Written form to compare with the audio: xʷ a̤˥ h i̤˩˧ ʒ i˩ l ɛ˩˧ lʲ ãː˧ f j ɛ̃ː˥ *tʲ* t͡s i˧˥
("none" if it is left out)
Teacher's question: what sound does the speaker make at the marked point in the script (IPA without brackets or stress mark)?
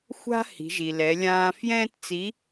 t